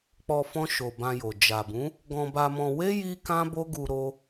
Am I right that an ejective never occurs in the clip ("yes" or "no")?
yes